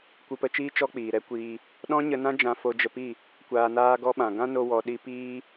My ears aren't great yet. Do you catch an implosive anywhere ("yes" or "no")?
yes